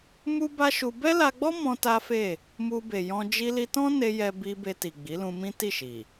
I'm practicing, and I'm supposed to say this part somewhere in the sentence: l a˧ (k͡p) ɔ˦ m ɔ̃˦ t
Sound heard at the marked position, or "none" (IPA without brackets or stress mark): ɡ͡b